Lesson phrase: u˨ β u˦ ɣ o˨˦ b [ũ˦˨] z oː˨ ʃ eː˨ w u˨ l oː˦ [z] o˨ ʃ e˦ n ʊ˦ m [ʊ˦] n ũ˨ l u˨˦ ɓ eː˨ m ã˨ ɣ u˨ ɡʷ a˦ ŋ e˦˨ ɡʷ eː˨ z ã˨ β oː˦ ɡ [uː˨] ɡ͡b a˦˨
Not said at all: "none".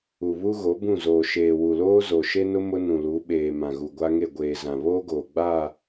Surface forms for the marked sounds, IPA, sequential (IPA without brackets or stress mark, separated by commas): ũ˦˨, z, ʊ˦, oː˨